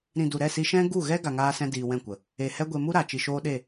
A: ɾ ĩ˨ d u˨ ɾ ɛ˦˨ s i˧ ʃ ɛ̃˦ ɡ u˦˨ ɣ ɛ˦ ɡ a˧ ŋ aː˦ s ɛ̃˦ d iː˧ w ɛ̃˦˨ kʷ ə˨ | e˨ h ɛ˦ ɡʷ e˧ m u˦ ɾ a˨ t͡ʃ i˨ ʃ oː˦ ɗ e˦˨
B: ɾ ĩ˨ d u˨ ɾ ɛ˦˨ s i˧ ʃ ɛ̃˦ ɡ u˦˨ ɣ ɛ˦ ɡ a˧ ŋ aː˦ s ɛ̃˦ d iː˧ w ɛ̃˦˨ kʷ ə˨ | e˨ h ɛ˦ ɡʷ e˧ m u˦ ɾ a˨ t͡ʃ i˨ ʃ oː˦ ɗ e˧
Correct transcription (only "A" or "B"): A